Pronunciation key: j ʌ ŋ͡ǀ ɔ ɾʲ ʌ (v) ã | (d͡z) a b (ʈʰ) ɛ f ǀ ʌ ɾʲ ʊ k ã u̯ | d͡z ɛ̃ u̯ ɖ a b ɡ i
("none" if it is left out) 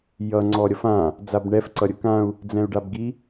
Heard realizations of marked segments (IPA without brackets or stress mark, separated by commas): f, d͡z, ɳ